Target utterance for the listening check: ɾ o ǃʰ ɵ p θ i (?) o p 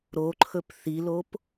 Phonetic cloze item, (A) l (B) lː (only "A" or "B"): A